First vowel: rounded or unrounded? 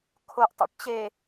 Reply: rounded